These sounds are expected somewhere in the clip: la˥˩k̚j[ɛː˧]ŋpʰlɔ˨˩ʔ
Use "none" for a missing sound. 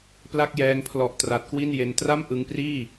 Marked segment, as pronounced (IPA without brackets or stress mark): ɛː˧